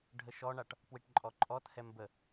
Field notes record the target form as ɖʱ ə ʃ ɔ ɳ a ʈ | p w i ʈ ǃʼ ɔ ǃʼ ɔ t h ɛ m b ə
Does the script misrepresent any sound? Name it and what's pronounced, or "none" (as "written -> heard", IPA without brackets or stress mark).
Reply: none